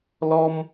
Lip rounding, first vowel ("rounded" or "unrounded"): rounded